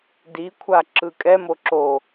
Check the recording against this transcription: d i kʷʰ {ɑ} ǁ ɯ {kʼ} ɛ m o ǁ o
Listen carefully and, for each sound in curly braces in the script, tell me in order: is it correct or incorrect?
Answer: incorrect: a, correct

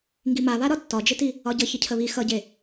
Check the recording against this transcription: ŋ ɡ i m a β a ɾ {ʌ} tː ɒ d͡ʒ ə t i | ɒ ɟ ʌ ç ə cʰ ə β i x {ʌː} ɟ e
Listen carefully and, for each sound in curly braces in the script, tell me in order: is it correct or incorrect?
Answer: incorrect: ɒ, incorrect: ʌ

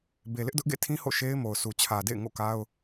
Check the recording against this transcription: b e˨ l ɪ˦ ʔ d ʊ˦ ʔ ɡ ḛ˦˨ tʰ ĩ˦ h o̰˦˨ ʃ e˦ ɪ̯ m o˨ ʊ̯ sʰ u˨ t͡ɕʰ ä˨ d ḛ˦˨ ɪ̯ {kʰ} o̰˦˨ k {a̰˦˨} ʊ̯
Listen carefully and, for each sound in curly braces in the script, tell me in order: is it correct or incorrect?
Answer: incorrect: ŋ, incorrect: a˦

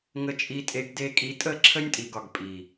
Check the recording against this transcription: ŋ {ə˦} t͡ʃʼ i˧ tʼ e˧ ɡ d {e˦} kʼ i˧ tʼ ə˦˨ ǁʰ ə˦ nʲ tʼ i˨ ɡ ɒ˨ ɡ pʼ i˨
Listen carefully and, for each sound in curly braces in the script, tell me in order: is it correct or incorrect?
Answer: incorrect: ə˧, incorrect: e˧

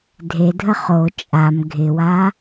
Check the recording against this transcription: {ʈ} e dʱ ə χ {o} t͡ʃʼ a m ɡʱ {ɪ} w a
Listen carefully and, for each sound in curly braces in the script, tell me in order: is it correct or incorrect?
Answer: incorrect: dʱ, correct, correct

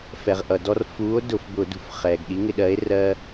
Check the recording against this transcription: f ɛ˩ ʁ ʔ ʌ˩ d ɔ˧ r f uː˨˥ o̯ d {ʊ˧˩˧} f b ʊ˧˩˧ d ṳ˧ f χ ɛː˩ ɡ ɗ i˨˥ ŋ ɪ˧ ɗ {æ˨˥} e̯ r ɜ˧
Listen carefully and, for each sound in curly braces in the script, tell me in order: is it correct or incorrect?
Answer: correct, incorrect: ɜ˨˥

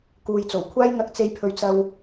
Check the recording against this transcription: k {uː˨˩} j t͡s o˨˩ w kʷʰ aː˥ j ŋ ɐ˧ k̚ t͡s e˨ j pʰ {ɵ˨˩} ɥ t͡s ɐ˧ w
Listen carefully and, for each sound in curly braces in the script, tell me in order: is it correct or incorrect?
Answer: incorrect: uː˨, incorrect: ɵ˨

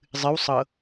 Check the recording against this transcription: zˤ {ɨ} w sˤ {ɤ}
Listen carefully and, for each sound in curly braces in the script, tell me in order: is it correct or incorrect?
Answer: correct, correct

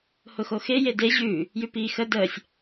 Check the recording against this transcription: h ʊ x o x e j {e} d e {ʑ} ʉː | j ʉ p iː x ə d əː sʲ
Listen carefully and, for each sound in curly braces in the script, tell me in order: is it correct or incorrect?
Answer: correct, correct

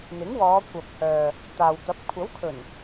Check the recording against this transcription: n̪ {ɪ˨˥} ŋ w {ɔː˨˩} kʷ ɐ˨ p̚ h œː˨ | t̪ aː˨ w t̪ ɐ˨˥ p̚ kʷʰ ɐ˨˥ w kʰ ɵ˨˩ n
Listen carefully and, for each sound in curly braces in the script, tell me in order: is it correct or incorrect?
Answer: correct, incorrect: ɔː˨˧

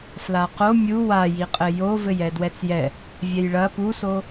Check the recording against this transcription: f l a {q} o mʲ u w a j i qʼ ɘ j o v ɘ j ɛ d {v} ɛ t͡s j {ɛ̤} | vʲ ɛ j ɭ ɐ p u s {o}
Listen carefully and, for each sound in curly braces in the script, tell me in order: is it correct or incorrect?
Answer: correct, incorrect: w, incorrect: ɛ, correct

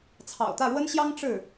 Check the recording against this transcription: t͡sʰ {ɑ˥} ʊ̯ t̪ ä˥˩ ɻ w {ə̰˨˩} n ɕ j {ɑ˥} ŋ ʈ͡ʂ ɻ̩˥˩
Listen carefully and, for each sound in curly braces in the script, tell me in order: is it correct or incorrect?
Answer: incorrect: ɑ̰˨˩, incorrect: ə˥, correct

